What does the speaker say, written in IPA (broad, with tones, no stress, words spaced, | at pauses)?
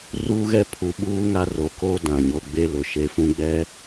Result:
ruː˦ɣɛ˦pʰu˨˦ ɓuː˦ŋa˦ro˨˦koː˦ dã˨ɲo˦ ɡ͡be˦lʊ˨ʃe˦ fũ˦ɡ͡bɛ˦